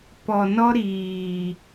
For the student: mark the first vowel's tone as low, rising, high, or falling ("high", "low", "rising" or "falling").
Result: low